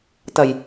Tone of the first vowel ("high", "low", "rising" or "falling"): low